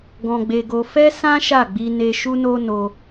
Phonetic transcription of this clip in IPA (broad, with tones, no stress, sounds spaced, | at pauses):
ɡ ɔ̃˧ ɡ͡b e˧ ɡ o˧ f ɛ˦ s ã˦ ʃ a˦˨ ɡ͡b i˧ n e˧ ʃ u˦ n o˦ n o˧